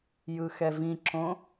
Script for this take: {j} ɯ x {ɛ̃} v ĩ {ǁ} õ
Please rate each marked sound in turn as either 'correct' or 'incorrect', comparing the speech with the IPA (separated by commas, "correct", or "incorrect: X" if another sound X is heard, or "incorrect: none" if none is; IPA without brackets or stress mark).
correct, incorrect: ɛ, correct